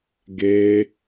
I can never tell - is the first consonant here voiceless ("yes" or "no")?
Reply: no